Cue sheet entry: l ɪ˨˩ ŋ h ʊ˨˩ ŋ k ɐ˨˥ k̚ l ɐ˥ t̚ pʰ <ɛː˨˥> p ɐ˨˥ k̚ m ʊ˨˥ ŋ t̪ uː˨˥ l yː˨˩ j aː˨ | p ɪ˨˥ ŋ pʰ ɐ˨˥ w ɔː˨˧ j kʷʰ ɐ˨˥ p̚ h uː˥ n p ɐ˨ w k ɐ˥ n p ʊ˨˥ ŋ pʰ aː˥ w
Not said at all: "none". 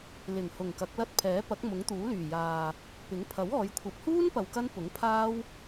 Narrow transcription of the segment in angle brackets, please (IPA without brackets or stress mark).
ɛː˨˥